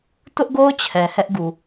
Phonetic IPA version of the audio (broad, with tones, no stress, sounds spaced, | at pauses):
t ʊ˦ ʔ ɡ o˦ ʊ̯ t͡ɕʰ ɛ˨ h ɛ˦ ʔ ɡ u˨